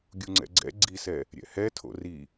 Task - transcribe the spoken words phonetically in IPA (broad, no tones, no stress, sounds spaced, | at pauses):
ɡʲ u ŋ͡ǀ ɛ̰ ɡ͡ǀ ɛ̰ ɡ͡ǀ i s ɛ | ɾʲ ɛ̰ h ɛ tʰ o̰ r i